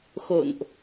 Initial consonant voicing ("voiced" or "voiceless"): voiceless